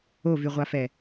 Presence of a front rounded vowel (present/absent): present